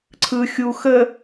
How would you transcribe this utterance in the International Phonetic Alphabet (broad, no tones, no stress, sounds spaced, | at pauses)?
ǀʰ ɯ xʲ u x ə